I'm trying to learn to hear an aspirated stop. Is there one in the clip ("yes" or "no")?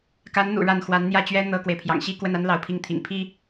yes